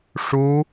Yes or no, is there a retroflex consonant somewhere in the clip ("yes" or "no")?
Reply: yes